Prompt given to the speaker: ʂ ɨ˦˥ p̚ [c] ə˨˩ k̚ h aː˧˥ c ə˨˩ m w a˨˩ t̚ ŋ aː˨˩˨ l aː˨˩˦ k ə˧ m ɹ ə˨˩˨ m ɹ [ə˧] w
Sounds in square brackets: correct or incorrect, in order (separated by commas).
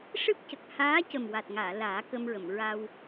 correct, incorrect